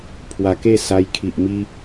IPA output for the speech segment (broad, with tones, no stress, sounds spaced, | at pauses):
pʰ w a˧ k e˥˧ s a˧ j kʰ i˨ ʔ m i˧